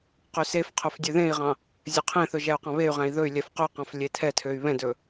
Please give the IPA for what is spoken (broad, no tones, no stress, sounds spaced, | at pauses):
q ø s e f qʰ ɵ f dʲ ø ð ẽ i̯ ʁ ɑ̃ | zʲ ɵ qʰ ẽ θ ɵ ʒ æ u̯ q ɑ̃ β e y̯ ʁ æ̃ i̯ ð ɵ y̯ lʲ ɛ f q ɵ q ɑ̃ f lʲ e tʰ ɛ tʰ ø y̯ β ɛ̃ d ɵ